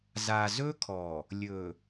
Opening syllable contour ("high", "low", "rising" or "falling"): low